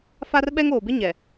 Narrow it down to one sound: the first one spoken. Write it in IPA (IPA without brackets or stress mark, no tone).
f